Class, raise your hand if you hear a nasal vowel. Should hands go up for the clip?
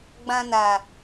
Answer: yes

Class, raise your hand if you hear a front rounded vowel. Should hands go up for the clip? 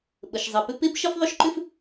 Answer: yes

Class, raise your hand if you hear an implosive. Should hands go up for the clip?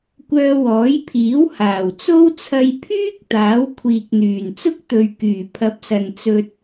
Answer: no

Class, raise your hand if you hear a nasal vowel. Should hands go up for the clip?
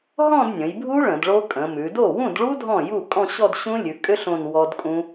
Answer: yes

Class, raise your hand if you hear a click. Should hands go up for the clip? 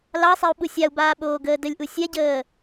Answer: no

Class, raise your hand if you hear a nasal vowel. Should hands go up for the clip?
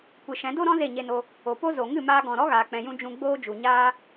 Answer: yes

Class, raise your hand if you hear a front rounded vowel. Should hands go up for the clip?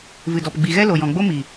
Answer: no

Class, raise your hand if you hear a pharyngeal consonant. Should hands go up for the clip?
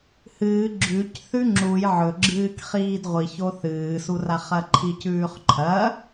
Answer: yes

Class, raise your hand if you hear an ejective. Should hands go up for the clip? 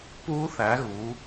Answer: no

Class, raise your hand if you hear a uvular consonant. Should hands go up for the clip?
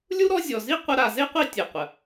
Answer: yes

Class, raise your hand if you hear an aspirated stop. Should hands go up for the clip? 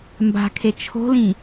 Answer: yes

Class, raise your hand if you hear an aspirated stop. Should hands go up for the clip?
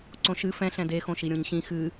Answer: no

